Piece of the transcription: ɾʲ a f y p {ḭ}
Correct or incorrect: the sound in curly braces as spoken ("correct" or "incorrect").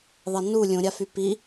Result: incorrect